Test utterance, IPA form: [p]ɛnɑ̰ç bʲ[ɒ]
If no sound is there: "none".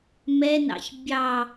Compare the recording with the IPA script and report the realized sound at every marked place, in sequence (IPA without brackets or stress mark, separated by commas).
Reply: m, ɑ